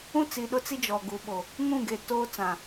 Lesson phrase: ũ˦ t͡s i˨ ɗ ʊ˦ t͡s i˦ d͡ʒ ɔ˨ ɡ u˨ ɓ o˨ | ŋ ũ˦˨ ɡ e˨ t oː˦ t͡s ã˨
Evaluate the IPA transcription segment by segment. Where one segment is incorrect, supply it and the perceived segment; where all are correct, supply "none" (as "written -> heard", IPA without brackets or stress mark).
none